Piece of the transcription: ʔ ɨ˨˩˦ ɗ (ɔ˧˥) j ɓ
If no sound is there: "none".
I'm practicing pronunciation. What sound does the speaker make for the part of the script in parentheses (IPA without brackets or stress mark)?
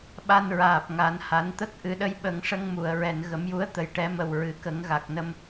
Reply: ə˧˥